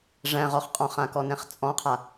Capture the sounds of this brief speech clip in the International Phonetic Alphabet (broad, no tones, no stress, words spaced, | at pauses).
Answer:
ʐæ̃ʁɔχ qʼɔ̃χãkɔnɛ̃χ t͡sʼɔ̃qʰa